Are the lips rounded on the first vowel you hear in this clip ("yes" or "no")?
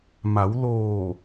no